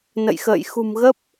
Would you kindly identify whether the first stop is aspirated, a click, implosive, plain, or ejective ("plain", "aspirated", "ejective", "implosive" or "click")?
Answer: plain